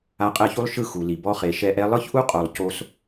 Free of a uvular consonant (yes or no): no